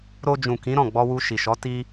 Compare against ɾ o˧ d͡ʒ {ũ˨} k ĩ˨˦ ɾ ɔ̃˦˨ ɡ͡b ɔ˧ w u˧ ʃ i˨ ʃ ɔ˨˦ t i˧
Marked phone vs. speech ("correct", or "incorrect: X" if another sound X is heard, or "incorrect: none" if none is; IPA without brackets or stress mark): correct